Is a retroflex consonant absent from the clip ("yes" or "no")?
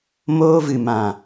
yes